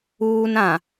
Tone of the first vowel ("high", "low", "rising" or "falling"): high